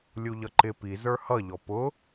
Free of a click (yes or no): no